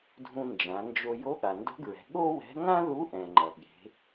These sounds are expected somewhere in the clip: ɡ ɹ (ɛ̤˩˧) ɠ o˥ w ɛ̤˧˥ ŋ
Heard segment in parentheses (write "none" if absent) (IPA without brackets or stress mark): ɛ̤˩˧